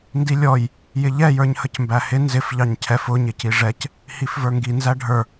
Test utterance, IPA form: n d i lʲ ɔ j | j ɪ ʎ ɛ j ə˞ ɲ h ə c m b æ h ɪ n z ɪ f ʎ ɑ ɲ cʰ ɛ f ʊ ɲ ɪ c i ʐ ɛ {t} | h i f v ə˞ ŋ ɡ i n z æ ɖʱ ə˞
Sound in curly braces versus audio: incorrect: c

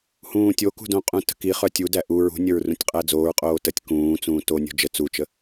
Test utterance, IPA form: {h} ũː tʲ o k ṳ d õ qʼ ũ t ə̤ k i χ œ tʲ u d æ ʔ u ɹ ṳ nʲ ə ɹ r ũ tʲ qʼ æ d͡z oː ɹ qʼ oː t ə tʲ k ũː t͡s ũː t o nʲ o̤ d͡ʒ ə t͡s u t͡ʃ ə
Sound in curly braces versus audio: correct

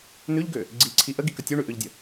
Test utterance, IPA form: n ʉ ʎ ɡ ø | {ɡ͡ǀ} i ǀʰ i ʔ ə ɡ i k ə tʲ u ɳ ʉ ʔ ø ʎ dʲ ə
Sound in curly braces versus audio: correct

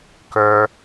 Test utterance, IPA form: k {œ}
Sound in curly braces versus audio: correct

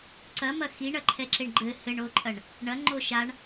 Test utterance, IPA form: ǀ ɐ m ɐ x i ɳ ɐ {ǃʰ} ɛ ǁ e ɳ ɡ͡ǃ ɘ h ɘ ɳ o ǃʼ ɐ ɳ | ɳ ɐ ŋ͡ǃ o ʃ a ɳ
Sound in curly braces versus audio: correct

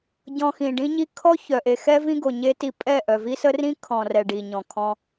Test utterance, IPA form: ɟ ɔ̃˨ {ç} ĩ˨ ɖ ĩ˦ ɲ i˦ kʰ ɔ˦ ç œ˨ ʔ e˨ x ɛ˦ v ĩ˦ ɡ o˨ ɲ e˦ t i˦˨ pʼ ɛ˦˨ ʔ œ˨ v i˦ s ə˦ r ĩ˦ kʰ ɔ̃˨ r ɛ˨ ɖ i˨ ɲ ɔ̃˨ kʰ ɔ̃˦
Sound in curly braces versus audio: incorrect: x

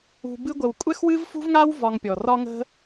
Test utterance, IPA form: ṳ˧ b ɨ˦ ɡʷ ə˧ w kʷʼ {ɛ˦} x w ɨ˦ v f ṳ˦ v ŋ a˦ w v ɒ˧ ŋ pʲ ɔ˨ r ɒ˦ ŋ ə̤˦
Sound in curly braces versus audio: correct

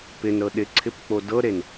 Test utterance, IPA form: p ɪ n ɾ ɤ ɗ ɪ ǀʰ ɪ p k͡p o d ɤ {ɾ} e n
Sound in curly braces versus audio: correct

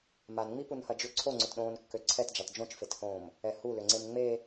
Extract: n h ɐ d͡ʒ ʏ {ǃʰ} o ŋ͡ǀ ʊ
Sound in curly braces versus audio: incorrect: ǀʰ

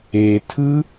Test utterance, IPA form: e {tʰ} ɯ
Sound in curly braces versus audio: correct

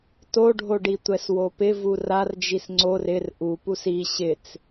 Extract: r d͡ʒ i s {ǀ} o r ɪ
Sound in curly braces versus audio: incorrect: ŋ͡ǀ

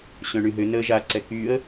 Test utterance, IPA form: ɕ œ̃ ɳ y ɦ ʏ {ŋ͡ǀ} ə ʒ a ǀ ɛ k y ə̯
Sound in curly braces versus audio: incorrect: n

